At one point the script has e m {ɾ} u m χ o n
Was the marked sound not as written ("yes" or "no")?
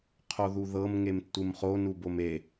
yes